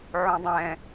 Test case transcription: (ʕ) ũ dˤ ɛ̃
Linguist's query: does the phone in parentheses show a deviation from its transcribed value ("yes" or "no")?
no